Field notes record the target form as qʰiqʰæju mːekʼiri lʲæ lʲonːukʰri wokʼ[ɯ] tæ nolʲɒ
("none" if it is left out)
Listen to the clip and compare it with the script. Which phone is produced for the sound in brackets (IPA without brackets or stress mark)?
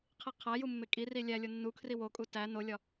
u